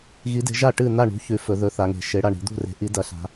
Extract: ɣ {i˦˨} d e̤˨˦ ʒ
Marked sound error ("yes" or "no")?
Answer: yes